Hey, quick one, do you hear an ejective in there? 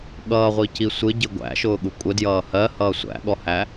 yes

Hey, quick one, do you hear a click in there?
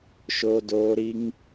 no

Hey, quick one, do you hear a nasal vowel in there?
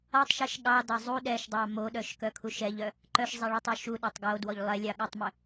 no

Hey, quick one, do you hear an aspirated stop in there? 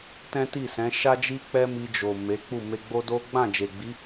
no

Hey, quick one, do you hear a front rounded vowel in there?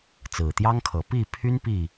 yes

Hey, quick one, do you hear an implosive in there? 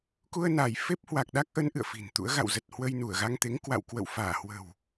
yes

